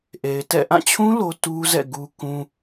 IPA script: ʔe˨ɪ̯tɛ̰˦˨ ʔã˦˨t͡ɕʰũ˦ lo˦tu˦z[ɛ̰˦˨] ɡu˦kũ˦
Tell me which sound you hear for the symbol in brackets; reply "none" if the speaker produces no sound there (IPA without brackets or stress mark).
ɛ̰˦˨